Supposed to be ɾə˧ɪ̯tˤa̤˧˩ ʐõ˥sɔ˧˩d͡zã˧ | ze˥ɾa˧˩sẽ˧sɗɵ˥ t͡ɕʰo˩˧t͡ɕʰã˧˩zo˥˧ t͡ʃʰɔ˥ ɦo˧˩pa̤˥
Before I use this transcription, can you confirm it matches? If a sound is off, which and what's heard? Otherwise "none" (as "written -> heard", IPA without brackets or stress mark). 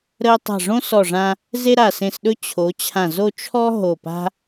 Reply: d͡z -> ʐ